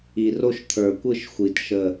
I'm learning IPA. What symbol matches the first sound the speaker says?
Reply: i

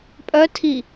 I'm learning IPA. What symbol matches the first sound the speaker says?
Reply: pʼ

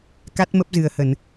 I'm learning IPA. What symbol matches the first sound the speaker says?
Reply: k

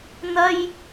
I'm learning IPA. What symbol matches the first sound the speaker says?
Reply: n̪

